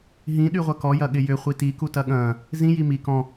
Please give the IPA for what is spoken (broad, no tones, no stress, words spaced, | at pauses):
ɦĩ ɗyʁʷɐkɔ jɐɠɪjʏ χʷiti kutɐɠɐ̃ː | zĩ jimi kɔ̃